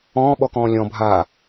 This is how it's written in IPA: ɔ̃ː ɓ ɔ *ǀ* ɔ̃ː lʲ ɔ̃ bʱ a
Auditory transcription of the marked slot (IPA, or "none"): k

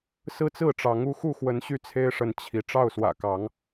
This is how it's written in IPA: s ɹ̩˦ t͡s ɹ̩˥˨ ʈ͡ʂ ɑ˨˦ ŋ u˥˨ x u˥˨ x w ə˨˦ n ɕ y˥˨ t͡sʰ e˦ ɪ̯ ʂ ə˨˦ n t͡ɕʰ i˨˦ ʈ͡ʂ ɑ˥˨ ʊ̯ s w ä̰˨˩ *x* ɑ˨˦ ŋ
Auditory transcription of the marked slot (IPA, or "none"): k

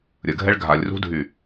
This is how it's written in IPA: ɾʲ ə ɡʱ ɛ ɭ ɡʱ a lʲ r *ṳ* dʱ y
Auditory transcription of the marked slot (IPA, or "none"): ṳ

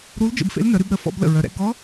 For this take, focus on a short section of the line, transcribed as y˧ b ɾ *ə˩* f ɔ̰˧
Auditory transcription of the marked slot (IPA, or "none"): ə˩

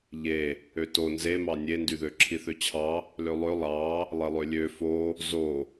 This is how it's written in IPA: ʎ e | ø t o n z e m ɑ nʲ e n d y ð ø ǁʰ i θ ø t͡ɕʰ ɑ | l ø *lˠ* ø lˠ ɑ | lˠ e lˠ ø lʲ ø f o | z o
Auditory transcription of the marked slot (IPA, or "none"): lˠ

